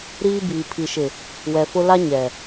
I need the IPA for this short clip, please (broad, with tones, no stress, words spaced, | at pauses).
ɾiː˦biː˨ pʰi˨ʃɪ˨ | wɛ˨fʊ˦ la˦ ɲɛ˨